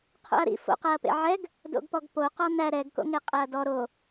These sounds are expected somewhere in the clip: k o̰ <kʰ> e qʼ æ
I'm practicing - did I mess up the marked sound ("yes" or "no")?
yes